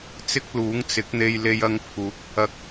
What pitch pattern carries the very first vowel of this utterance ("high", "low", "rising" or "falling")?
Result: high